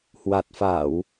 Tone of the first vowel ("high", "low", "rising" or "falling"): low